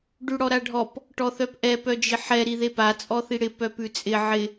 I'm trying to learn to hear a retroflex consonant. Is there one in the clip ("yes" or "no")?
yes